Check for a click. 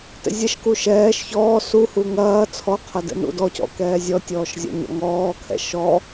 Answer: absent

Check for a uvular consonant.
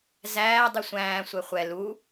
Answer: present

